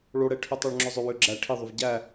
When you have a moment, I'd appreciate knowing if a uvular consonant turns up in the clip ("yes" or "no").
no